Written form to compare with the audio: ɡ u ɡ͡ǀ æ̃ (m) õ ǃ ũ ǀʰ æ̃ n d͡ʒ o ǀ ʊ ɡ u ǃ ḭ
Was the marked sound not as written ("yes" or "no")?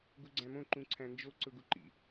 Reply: no